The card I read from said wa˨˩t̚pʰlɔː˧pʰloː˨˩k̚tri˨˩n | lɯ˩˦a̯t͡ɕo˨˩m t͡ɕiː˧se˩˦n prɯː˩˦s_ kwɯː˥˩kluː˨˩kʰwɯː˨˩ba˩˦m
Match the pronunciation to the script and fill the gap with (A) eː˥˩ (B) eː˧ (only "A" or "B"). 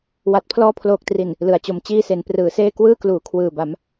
A